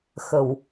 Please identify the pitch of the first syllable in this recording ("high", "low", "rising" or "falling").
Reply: low